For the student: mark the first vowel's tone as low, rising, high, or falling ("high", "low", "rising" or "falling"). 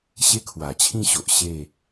high